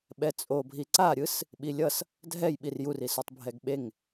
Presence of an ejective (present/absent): present